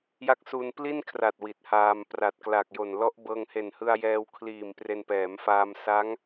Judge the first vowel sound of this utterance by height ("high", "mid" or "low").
low